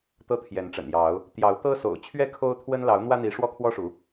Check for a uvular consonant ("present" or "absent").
absent